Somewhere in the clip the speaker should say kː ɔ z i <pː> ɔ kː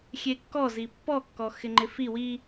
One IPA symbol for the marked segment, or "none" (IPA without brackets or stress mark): pː